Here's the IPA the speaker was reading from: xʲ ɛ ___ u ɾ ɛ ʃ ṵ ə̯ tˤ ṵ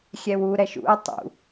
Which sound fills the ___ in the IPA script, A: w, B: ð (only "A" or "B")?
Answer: A